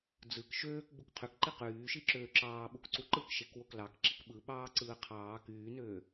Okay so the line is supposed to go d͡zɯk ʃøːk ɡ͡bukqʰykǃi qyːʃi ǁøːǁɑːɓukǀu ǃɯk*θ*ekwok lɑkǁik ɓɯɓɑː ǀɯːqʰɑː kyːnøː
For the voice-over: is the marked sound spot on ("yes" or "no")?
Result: no